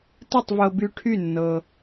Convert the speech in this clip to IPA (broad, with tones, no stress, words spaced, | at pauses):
tɨ˥˩tˤvɤ˧by˧ʈʰy˥˩ nːɤ˧